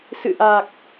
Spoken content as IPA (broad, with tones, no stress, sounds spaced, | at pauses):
s ɨ̰˧˨ ʔ a˨˩ k̚